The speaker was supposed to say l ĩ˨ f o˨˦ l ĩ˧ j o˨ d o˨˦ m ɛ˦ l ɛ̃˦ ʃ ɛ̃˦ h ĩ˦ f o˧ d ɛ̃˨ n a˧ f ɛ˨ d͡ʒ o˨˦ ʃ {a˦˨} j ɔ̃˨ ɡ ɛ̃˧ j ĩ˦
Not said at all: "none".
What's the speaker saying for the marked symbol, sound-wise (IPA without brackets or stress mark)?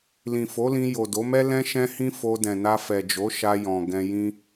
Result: a˧